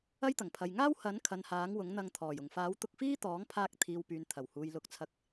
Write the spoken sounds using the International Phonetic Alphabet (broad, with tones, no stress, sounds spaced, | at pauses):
ɐ˥ j t̪ ɐ˨˩ ŋ pʰ ɐ˨ j ŋ aː˥ w h ɐ˨˥ n kʰ ɐ˨ n h aː˨˥ ŋ w ʊ˨˥ ŋ n̪ ɐ˧ ŋ t̪ʰ ɔː˨˩ j ʊ˨˩ ŋ f aː˨˥ w t̪ ʊ˧ k̚ f iː˥ t̪ ɔː˨˥ ŋ pʰ aː˧ k̚ t̪ʰ iː˨ w p yː˨ n t̪ʰ ɐ˨˩ w h uː˨ j l ʊ˨˥ k̚ t͡sʰ ɐ˧ k̚